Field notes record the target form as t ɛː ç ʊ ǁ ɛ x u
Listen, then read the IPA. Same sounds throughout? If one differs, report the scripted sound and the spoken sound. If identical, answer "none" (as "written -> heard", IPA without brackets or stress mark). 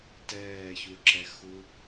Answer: ʊ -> u